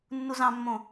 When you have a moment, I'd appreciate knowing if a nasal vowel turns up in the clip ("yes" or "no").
yes